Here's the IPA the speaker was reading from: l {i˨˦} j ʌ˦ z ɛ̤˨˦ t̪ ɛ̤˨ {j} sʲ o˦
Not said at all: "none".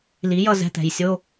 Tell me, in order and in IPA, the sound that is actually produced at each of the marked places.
i˨˦, j

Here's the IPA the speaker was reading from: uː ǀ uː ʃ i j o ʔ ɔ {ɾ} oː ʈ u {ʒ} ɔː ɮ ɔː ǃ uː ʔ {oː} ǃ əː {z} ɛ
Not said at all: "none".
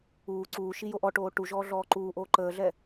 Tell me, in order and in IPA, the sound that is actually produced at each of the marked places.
ʈ, ʒ, oː, ɮ

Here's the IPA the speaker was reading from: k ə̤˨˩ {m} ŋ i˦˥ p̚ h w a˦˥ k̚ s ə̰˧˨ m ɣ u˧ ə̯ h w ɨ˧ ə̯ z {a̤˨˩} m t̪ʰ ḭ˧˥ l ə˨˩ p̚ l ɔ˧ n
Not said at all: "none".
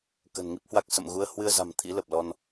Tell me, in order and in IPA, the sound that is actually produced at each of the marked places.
n, a̤˨˩

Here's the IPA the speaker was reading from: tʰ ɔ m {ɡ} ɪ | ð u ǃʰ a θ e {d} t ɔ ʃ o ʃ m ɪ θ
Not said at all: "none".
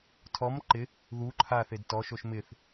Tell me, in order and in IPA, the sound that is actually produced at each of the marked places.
ǃ, d

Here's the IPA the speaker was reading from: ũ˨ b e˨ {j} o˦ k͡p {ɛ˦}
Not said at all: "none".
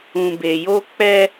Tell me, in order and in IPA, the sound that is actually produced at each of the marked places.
j, ɛ˦

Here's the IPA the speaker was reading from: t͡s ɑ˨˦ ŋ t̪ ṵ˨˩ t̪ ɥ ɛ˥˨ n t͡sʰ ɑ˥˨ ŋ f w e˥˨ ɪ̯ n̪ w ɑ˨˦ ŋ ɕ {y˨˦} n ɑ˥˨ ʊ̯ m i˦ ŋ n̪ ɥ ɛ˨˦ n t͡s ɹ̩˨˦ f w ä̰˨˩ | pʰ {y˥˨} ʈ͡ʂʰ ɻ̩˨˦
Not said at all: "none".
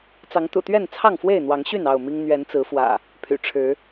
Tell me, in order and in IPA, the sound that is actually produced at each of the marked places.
y˥˨, y̰˨˩

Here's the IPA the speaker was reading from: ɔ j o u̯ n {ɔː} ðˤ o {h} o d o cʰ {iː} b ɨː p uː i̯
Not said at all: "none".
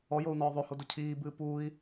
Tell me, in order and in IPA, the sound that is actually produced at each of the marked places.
ɔː, h, iː

